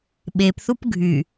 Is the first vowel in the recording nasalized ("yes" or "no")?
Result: no